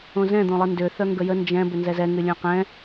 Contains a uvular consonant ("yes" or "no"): yes